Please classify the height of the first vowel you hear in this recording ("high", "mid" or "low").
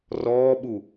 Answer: mid